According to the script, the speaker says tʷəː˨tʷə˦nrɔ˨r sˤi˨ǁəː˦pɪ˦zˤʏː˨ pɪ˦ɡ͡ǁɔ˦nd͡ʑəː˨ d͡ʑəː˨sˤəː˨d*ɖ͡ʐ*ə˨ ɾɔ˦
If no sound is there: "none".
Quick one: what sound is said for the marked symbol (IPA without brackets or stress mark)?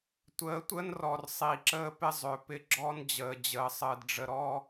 ɖ͡ʐ